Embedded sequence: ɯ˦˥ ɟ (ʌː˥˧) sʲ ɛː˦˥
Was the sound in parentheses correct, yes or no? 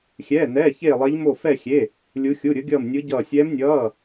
yes